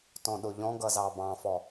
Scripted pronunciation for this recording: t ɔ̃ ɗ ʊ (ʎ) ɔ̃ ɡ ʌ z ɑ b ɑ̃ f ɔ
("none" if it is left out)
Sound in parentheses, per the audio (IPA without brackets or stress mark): ʎ